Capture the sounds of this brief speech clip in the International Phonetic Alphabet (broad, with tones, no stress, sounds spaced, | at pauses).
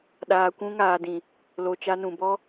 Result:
ɗ aː˨ kʷ ũ˧ ŋ aː˨ d ĩ˨ | l o˨ t͡ʃ a˧ n ũ˨ b ɔ˦